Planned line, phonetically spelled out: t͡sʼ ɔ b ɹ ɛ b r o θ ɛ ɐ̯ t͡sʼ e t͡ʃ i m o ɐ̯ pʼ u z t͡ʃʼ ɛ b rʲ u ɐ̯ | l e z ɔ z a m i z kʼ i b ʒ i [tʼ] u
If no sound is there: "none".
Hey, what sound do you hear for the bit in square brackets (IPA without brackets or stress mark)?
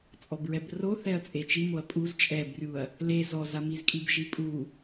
pʼ